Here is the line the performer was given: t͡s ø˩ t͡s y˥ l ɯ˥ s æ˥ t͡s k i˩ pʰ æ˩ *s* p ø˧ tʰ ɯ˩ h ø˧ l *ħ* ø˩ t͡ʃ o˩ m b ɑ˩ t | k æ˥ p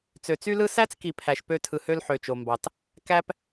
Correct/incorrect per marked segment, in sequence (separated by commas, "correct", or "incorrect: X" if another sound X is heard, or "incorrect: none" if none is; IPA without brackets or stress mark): incorrect: ʃ, correct